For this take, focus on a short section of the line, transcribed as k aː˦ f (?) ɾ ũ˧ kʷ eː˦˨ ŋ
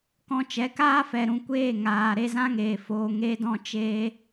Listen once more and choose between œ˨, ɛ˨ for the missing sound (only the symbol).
ɛ˨